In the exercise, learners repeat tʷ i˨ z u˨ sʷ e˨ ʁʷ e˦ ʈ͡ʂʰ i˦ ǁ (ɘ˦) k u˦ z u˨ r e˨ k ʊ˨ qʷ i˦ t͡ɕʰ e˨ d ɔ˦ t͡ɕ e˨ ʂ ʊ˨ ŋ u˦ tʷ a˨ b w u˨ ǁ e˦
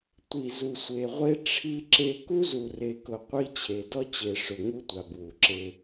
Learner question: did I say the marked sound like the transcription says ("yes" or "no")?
no